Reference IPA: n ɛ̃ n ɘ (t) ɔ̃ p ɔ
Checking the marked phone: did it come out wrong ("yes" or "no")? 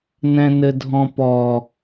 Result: yes